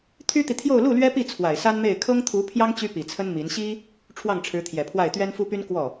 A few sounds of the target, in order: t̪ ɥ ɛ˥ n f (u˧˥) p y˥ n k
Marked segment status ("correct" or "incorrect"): incorrect